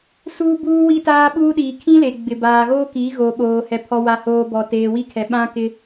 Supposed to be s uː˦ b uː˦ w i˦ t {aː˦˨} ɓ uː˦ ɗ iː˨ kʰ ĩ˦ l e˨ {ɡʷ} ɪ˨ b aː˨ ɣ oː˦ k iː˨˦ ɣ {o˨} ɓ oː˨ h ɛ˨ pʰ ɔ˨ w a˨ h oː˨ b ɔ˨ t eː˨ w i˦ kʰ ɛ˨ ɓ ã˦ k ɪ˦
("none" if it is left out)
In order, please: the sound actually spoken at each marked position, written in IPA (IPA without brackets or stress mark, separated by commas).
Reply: aː˦, ɡ͡b, o˨